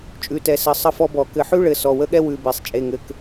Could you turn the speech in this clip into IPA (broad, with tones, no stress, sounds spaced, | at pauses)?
t͡ʃʼ ʉ˩˧˩ t ɛ˧˩˧ s ɘ˩˧˩ sˤ ə˥ f ɔ˥ b ɔ˧˩˧ k ɘ˧˩˧ ħ ʉ˥ ɭ ɘ˩˧˩ s ɔ˩˧˩ w ə˥ ɠ ɛ˥ w ʉ˩˧˩ b e˩˧˩ sˤ t͡ʃʼ e˩˧˩ ŋ ɘ˩˧˩ k